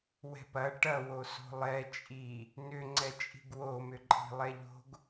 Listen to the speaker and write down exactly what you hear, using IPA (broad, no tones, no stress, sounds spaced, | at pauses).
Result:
w ɛ̤ p ɐ ʈ ɐ w o s o̤ lˠ ɛ t͡ʃʼ i | n ʏ ŋ͡ǀ ɛ t͡ʃʼ i̤ ɡ w o m ʏ ǃʼ i̤ lˠ ɛ ʎ o̤ ɡ